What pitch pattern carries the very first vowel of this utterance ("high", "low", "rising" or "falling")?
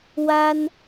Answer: high